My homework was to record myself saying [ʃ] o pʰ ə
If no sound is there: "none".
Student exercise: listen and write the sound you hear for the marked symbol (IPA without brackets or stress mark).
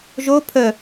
ʒ